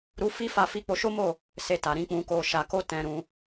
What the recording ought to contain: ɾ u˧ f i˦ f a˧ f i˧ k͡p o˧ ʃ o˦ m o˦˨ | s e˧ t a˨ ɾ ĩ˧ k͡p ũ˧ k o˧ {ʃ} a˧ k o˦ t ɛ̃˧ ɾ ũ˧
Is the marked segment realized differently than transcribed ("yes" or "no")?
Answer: no